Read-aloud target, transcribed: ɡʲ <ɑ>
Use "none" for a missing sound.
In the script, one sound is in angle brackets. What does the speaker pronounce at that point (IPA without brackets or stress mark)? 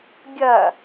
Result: ɐ